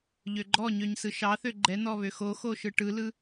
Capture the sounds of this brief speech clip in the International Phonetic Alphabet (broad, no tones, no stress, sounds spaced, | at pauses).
ʎ ø ɡ͡ǃ ɔ ɲ ø ɲ s ɯ ʃ ɑ θ ø ɡ͡ǃ ɛ n̪ ɔ β ø x o x o ʃ ɯ ʈ ɯ l ɯ